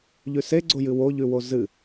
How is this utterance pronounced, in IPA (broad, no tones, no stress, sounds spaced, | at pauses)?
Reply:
ʎ ʉ s e ɡ͡ǀ o j ɨ w o ʎ ʉ w o z ɨ